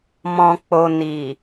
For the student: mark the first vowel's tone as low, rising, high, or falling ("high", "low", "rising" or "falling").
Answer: low